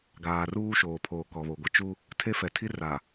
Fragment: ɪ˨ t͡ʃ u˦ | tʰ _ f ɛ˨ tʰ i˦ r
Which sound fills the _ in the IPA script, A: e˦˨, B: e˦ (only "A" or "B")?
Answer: B